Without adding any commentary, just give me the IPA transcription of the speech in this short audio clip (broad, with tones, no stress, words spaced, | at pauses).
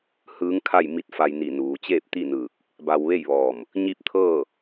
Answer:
hɯː˧˥ŋkʰa˥˨j mi˧˥t̚fa˧jni˧˩nuː˩˧ t͡ɕeː˥˨p̚t̪i˥˨nɯː˧˩k̚ | ba˧wʋe˥˨jʋɔː˧˩m | ɲi˥˨p̚t̪ʰɤː˥˨